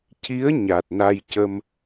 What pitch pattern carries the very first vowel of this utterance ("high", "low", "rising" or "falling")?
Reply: rising